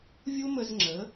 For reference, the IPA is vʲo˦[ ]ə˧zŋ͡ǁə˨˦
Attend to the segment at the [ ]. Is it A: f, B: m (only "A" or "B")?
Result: B